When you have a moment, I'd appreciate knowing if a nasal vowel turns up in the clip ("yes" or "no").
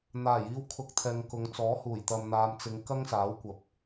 no